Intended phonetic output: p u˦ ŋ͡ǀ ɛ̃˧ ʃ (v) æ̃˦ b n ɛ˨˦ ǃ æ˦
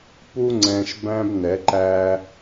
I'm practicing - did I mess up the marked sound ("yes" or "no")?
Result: yes